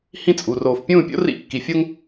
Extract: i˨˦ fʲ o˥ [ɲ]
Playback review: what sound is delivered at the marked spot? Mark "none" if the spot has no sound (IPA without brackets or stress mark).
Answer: ŋ